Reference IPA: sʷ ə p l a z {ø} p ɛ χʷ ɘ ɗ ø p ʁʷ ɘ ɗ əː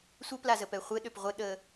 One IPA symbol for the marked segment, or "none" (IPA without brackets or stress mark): ə